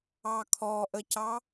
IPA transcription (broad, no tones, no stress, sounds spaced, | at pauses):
ɑ kʰ ɔ ʔ ə c ɑ